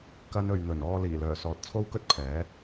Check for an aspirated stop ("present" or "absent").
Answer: present